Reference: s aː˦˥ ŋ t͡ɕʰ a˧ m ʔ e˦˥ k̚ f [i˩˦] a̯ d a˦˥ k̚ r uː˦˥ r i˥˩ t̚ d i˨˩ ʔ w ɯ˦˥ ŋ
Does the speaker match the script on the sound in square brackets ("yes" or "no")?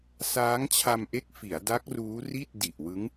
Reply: yes